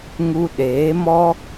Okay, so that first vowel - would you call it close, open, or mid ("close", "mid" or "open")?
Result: close